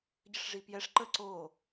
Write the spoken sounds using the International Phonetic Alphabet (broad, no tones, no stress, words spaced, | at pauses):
ɟəʂʐipjɛʂ ǃə ǀo